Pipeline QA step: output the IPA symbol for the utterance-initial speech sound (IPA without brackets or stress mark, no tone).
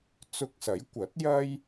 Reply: t͡s